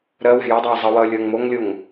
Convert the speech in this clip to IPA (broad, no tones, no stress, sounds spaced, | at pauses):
ɾ ɜ w ɛ̤ j ʌ dˤ oː zˤ ə w ʌː lʲ ʌː ŋ m o ŋ lʲ o ŋ